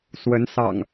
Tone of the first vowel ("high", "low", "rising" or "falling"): rising